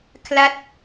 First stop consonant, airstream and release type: aspirated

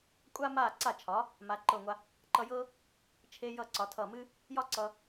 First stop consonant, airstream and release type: ejective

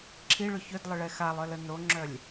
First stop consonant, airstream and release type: click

